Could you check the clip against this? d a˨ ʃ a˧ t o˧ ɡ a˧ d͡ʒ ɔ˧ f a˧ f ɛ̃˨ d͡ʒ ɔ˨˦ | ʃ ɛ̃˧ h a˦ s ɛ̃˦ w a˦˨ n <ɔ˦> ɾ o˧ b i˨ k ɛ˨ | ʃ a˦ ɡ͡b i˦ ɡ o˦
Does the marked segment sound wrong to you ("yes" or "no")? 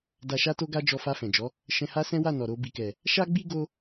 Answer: yes